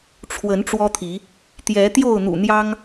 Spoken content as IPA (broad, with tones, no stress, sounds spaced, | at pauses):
ʈ͡ʂʰ w ə˨˦ n ʈ͡ʂ w ɔ˦ t̪ʰ i˨˦ | t̪ j ɛ˨˦ t̪ j o˥˨ ʊ̯ n̪ ṵ˨˩ n̪ j ɑ˦ ŋ